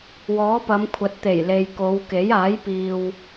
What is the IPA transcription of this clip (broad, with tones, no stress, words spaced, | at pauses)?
wɔː˨˥pɐ˨˧mkʷʰɐ˨˥t̚ t̪e˨˩jle˨jko˨˧wke˨˥j aː˨˥j piː˨w